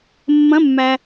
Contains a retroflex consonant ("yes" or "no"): no